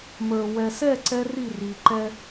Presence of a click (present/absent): present